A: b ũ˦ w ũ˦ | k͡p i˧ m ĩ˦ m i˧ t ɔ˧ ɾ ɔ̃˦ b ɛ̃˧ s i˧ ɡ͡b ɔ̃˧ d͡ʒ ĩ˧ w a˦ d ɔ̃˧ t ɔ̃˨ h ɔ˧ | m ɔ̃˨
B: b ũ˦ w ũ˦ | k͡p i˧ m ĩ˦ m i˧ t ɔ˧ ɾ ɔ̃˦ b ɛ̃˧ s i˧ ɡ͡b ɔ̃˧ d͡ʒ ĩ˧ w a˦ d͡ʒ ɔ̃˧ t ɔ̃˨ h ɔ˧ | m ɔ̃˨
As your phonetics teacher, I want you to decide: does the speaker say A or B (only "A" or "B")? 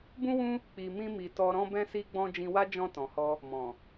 B